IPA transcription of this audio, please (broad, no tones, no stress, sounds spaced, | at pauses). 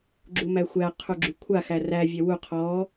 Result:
ɡ͡ǁ u m æ xʷ æ qʰ u ɡ͡ǁ y kʷʰ a x æ r æ vʲ ɛ w u qʰ ɔ